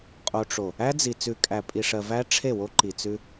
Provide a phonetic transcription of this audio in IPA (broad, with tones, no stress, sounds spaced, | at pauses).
qʼ o˨ ʈ͡ʂ o˨ | æ˦ d͡z i˨ t͡s ʉ˨ kʼ æ˨ pʼ i˨ ʂ ɜ˨ v æ˦ ʈ͡ʂʰ e˦˨ w o˦ ǃ i˨ t͡s ʉ˦